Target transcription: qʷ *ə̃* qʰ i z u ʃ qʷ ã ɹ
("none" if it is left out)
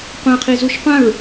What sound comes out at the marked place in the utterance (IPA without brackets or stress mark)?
ã